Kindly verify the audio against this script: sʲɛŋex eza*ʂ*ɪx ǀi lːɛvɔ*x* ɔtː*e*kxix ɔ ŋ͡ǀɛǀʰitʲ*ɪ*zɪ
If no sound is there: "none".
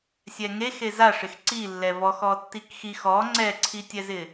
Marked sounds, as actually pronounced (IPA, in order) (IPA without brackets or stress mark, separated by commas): ʂ, x, i, ɛ